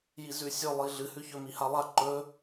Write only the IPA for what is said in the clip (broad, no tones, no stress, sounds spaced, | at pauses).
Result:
j i z ʉ sʲ ɵ lˠ i ɮ ɨ h ʉ ç ɵ m i h a lˠ a ǃ ɵ